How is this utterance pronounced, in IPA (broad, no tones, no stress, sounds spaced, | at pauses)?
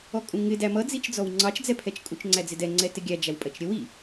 ɔ kʼ ũ ŋ ɪ d æ m ʌ d͡z i t͡ʃ d͡z ɔ w ŋ͡ǀ ɑ t͡ʃ d͡z ɛ pʰ ɛ t͡ʃ kʼ u t͡ʃ ŋ͡ǀ æ d͡z ɪ d ɛ ŋ͡ǀ ɛ t ɪ ɡʲ æ d͡ʒ æ w pʼ ɜ t͡ʃ ɾʲ ə w i